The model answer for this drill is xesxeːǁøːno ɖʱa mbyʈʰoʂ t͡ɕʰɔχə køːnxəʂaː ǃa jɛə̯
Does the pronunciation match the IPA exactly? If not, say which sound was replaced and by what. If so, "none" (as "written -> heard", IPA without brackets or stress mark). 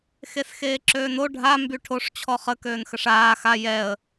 ǃ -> x